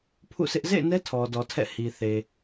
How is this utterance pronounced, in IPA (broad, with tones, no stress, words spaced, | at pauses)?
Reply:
pʰṵ˦˨sʰɪ˦ʔ zḛ˦˨ɪ̯nɛ˦ tʰɔ˨dɔ˨ tʰɛ̰˦˨hi˨θe˨